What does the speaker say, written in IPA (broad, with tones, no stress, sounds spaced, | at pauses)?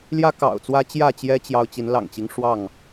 l j ä˦ k ɑ̰˨˩ ʊ̯ t͡s w ä˦ t͡ɕ j ä˥˨ t͡ɕ j ɛ˦ t͡ɕ j ɑ˦ ʊ̯ t͡ɕ i˨˦ n l ɑ̰˨˩ ŋ t͡ɕ i˦ ŋ ʂ w ɑ˥˨ ŋ